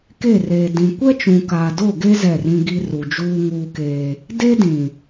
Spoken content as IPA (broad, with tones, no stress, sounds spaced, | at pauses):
k e˦˨ r eː˨ d ĩ˨ kʷ ɛ˦ t͡ʃ ũ˨ k aː˨ d o˦˨ ɡ e˦ z ɛ˦˨ r ĩ˦ ɡ i˦ r u˨ d͡ʒ uː˦ ŋ uː˦ k eː˦ | d e˦ d ĩ˨